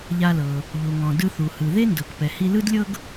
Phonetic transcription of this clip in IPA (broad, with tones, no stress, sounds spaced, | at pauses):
ʎ a˧ l ɤ˩ | ʎ u˩ ŋ ɔ̃˩ d ɯ˧ θ u˩ h ɯ˩ ð e˥ n d ɤ˩ k p ɛ˩ h i˧ l ɯ˥ d lʲ ɤ˥ ɡ